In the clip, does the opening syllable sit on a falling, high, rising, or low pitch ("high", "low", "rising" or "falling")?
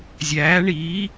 rising